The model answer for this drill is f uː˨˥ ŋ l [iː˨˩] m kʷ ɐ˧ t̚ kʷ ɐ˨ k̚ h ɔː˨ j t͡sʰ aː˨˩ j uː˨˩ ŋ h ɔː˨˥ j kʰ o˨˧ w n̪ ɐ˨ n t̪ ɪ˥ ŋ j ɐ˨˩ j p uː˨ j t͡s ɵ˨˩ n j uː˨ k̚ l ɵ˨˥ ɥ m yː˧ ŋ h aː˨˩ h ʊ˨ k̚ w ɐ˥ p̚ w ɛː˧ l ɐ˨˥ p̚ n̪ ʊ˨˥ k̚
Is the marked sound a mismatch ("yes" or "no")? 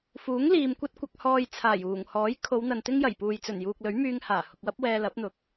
yes